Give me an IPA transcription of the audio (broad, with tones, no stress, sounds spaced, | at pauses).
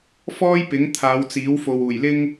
f ɔː˥ j p ɪ˨˥ ŋ t̪ʰ aː˨˧ w t͡s iː˨˥ w f o˨ w uː˨˩ j l ɪ˥ ŋ